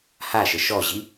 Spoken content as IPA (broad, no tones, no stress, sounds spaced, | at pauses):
h a ʃ ə ʃ ɔ ʑ i